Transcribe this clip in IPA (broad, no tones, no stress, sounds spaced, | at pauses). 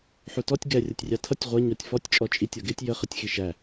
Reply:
ħ u t ɔ tʲ ɡ ɛ rʲ ʌ tʲ rʲ ɑ tʰ ʌ tʲ ʁʷ ʌ ɲ ɔ tʲ f ɔ tʲ t͡ʃʼ ɔ t͡ʃʼ i tʲ ʌ ɡ ɪ tʲ j ə χ ə tʲ x i ʃ æ